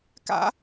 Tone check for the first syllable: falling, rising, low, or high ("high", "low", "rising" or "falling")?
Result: high